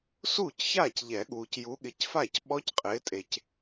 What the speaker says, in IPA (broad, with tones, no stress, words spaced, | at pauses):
suː˥˩cçaː˥˩cʎɛ˨˩˦ɠuː˨c ju˨˦ɠɪ˨˦cfa˥˩cɓɔ˦˥c qʼɪː˨˦tʼe˨c